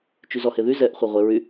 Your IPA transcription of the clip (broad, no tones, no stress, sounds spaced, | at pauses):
t͡ʃ y z ɔ h e ð y z ɛ ʔ χʷ e ʁʷ e ɹ y